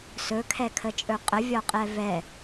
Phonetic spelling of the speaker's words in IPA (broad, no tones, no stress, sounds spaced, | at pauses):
s ɵ kʰ ɛ kʰ ə t͡ʃʼ ɵ qʼ ə vʲ ɒ qʼ ɛ v ɛ